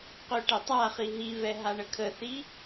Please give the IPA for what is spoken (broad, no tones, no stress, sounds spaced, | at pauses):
q ø ʈ ɛ tˤ a χ i ɦ i v ɛ ɦ a ɳ ə kʰ ə θ i